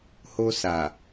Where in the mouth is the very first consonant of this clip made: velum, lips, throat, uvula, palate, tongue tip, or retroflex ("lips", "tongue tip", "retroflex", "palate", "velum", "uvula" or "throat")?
throat